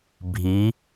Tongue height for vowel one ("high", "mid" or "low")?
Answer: high